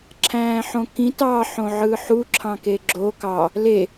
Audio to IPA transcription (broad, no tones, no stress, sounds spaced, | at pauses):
ǁʰ æ̃ː ħ õ k ĩ t ɑ ħ õ ʕ ɯ ħ u ǁʰ ɑ̃ k e ɡ͡ǁ o k ɑ | l e